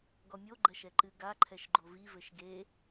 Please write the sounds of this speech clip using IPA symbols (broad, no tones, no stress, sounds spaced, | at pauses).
ɡ ɔ mʲ o ɡ͡ǃ ɐ ʃ ɛ ǃ ɨ ɡ a ǃʰ ɛ ʃ ɡ͡ǃ o v i v ɘ ʃ ɡ e